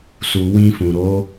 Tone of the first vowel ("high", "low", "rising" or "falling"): low